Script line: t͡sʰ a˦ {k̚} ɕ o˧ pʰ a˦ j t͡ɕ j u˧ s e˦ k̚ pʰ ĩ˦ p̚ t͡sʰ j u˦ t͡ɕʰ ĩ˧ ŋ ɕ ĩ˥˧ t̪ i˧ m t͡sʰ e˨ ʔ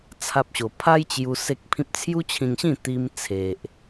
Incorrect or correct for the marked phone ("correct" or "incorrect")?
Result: incorrect